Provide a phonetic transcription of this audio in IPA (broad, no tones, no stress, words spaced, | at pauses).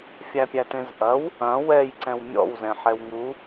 fʲæpʲætẽzʔɐw | ɐ̃ wɛjǀɛ̃w mʲɔ̰wzɛ̃ ħɛwŋu